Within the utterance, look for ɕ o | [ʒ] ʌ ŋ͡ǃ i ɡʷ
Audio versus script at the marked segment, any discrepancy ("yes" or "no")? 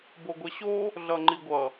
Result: yes